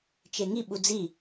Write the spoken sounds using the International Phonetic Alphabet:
t͡ʃ e ŋ i ɓ u d͡z i

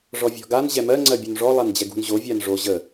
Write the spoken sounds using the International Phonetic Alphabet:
ʐ ɔ vʲ ɔ̤ ɡ a n ʑ ɛ m ɜ ŋ͡ǀ ɜ bʲ u n ʐ ɔ lˠ a n d͡ʑ ɛ ɡ ṳ n ʑ o vʲ a n ʐ o ʑ ə

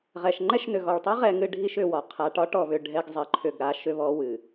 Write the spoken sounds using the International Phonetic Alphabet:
ʁ ɛ˨ ʃ ŋ͡ǃ ɛ˦ ʃ n ʏ˨ ɣ ɔ˨ ɭ tˤ i˦ ʁ ɛ˨ ŋ ɨ˦ ɖʱ i˦ ʃ ʏ˨ w ɒ˨ qʰ a˨ ʈ ɒ˦ ʈ ɔ˨ β ʏ˨ ɖʱ ɛ˦ ɡ zˤ ɛ˨ ǃʰ ʏ˦˨ ɡ ɾ a˦ ʃ ʏ˦ β ɔ˦ w ɨ˨

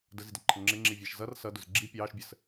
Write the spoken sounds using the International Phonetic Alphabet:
d ə z i d ə ǃʰ ə ŋ͡ǁ ɪ ŋ͡ǁ i vʲ æ ʃ z ʌ r s ʌ d ʊ z ɡ͡ǁ i pʲ ɑː ʃ bʲ ə s

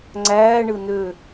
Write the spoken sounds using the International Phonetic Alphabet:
ŋ͡ǀ æː ɳ ɯ n ø

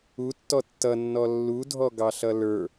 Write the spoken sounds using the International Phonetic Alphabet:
u tː ɔ tː ʌ nː ɔ lː u dʱ ɔ ɡ ɑ ɬ ʌ l ə˞

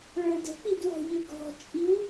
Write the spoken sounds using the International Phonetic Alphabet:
ɭ ə˞ d ə̤ k͡p i d w ɔ̤ ʎ ø ɡ ɔ̤ t͡ʃʼ i w

